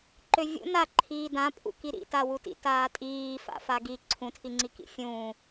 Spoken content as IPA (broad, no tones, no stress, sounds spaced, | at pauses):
ǃ ø vʲ ṵ n a ǃʰ iː d ã pʼ ṵ k i ɾ ḭ t a w u t ḭ t aː tʼ iː f a̰ f a ɡ i ǀʰ ũ tʰ i ŋ͡ǀ i k ḭ fʲ ũː